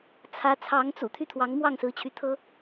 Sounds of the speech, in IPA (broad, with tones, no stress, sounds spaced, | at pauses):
t͡sʰ ä˧˥ t͡sʰ ɑ˧˥ ŋ t͡s ṵ˨˩ t̪ʰ y˥˩ t̪ʰ w ɑ˧˥ ŋ m w ɑ˥˩ ŋ s ɹ̩˧˥ t͡ɕʰ y˧˥ t̪ʰ ɤ˥